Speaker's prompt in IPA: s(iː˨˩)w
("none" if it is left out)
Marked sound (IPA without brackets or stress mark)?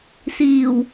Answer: iː˨˩